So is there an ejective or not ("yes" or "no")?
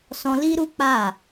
no